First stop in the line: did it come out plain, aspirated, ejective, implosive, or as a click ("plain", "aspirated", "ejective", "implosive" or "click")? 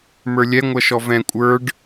ejective